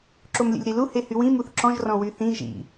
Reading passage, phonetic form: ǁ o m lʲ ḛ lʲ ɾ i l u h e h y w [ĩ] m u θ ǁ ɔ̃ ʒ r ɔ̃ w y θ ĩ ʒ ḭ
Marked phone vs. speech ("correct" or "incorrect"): correct